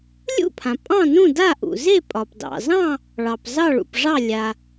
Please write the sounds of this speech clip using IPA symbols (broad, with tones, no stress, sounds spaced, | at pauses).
lʲ ṵ˥˨ pʰ ã˩ pʼ ɑ̃˥˨ n ũ˥˨ d a˥˨ ʔ ṵ˩ z e˥˨ pʼ ɒ˩ p d ɑ̰˩ z ɑ̃˥˨ | ɭ ɑ˩ p z ɑ˥˨ ɭ ṵ˩ p ʐ ɑ˥˨ lʲ a˩